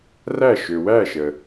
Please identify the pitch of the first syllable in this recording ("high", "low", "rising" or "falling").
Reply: falling